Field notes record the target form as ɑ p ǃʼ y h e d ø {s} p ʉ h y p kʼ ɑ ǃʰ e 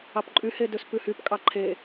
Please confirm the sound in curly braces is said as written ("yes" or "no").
yes